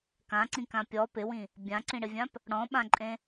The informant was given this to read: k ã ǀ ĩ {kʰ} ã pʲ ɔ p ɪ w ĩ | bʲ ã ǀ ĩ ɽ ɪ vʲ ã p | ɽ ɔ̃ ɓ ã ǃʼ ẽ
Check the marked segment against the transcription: incorrect: k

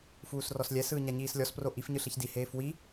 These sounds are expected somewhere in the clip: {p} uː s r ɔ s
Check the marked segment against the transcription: incorrect: f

